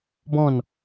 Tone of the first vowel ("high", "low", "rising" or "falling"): falling